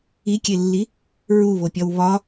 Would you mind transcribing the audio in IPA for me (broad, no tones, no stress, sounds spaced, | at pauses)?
i kʲ e lː i | ɹ u β o pʲ ɒ w β ɒ